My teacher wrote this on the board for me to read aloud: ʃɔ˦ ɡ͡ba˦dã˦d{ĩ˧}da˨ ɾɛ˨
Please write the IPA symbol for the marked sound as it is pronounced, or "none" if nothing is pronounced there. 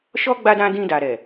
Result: ĩ˧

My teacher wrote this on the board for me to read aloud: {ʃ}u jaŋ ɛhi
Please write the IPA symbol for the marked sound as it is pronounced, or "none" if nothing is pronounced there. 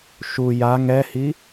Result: ʃ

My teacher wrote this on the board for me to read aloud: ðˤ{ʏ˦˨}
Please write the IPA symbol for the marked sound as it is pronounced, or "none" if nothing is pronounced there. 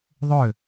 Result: ʏ˦˨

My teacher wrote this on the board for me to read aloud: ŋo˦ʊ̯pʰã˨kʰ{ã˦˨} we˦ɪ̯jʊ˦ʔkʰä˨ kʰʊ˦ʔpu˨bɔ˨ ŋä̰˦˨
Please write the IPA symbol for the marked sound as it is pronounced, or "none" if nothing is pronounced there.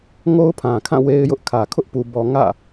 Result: ã˦˨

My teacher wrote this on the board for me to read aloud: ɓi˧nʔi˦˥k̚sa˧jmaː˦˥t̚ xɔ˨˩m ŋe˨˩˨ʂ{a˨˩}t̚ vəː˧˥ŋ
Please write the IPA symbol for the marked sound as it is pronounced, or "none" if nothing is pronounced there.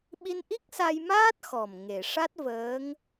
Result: a˦˥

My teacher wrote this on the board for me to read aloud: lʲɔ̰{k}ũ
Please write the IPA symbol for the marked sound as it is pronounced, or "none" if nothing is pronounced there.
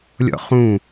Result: χ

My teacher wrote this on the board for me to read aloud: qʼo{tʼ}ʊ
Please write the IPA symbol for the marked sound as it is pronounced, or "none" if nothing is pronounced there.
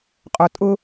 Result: tʼ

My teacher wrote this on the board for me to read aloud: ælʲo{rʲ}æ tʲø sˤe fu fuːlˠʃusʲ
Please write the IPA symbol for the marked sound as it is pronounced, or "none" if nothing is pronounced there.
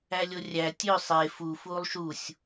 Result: rʲ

